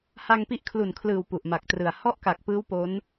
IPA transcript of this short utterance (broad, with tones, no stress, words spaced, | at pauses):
ha˧ŋpi˦˥ʔ kʰlu˨˩nkʰlɯː˨˩w pu˨˩ʔma˨˩k̚trɯ˨˩a̯ hɔ˥˩ʔka˨˩k̚pɯː˦˥w po˦˥n